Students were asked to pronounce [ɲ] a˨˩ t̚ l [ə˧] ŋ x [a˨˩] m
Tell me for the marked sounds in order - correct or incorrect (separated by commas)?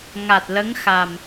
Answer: incorrect, incorrect, correct